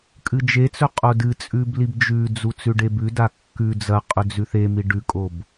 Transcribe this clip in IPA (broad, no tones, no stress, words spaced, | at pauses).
kʼɨd͡ʒet͡sɵ qʼodɨt͡sʼʉb libd͡ʒʉd͡zu t͡sʉɖebʉda kːʉ d͡zɐqʼɵ d͡zʉθemi ɖʉkʼob